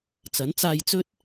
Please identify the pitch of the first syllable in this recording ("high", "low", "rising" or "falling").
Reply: rising